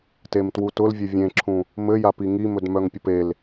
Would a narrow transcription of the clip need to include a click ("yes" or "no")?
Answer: yes